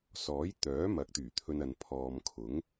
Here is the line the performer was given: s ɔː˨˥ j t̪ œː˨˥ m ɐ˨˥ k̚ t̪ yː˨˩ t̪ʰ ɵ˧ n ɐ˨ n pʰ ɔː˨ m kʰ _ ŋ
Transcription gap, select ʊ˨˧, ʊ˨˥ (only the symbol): ʊ˨˥